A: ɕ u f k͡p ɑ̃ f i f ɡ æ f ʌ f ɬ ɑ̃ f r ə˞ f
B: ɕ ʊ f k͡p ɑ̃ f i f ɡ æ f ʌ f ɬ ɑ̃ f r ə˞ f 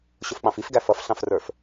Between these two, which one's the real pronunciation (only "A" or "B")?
B